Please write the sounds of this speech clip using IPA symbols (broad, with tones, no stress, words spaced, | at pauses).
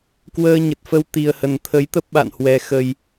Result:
kwəː˧ ɲə˨˩t̚fə˧w t̪i˨˩ə̯hə˨˩n t̪ʰə˨˦jt̪ə˦˥p̚ ɓa̰˧˨n hwɛ˨˩xə˨˩j